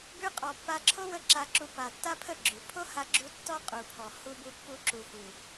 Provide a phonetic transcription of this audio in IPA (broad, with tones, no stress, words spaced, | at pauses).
bʉ˧ qʼɔ˨pːa˧ ǁʰo˦wə˧ ǁa˧ǁu˧ pa˨ tːa˦pʰə˦˨ ɡ͡ǁʉ˨ pʰo˦ha˧ɡ͡ǁu˧ tːɔ˦qʼu˨pʰɔ˨ hu˧bu˧ pːu˧ǁu˨hu˨